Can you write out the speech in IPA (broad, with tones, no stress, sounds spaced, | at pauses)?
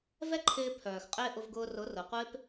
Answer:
v ɛ˦ ǃʰ ɪː˧ pʰ œː˨ x qʼ ɪː˦ ʔ ʊ˧ v ɡ ʊː˧ r ʊ˨˦ r ʊ˨ qʷ ɪː˦ p